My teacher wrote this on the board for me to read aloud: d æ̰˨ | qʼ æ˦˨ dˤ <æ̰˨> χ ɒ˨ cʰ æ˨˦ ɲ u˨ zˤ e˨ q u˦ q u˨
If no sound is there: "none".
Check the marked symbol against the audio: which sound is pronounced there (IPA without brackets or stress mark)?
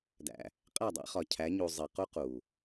æ̰˦